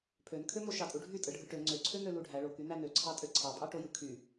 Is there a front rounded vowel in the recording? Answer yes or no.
yes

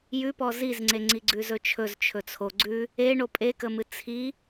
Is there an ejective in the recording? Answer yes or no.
yes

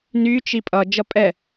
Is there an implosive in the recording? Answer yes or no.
no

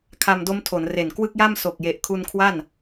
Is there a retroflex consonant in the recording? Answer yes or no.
no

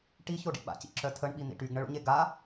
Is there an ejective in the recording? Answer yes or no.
no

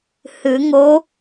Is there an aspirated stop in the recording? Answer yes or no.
no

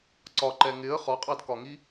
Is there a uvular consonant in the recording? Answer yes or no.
yes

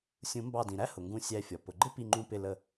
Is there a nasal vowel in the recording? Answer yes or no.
yes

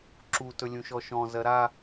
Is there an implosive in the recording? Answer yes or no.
no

